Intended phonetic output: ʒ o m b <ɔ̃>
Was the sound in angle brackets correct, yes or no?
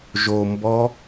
no